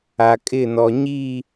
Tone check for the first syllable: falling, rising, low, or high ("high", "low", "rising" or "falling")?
low